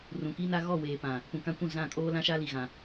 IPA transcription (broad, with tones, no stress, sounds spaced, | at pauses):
r ũ˨ k i˦ n a˦ ɣ ɔ˦˨ w eː˨ p ã˨ | p ũ˨ k ã˦ kʷ ũ˦˨ z ã˦˨ kʼ oː˦ l ã˦ ʃ a˦ l i˨ ɣ ã˨